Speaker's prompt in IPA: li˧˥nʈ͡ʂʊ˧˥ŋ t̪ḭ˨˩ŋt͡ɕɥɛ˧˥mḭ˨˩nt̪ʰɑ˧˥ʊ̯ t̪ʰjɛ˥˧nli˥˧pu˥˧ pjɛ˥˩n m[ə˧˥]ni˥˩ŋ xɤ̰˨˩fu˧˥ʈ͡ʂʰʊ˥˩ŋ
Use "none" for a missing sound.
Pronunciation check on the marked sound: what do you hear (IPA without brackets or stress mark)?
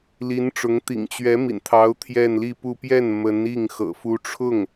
ə˧˥